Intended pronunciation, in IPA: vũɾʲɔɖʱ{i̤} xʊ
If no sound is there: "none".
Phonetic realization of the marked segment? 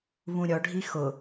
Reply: i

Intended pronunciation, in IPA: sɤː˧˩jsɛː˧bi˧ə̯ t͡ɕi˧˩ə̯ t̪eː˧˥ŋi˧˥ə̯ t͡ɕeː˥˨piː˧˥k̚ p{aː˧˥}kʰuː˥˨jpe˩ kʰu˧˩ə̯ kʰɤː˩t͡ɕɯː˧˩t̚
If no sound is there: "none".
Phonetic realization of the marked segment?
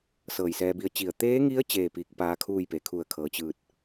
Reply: aː˧˥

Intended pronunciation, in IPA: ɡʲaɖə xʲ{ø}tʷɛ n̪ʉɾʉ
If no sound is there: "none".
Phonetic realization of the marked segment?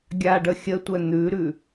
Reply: ə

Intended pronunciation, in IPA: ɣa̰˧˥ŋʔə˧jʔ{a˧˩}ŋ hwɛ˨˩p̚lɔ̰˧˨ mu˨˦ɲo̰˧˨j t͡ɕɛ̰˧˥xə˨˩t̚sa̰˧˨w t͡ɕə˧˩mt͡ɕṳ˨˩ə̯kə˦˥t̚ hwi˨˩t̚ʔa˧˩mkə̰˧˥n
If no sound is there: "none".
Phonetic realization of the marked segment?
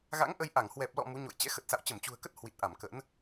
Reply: a˧˩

